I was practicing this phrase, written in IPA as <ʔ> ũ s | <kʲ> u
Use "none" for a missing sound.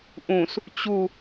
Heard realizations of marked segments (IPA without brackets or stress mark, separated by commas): ʔ, t͡ɕ